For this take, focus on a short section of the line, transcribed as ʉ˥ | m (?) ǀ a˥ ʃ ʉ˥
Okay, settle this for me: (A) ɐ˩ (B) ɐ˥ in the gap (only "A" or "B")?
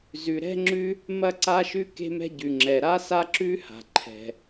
B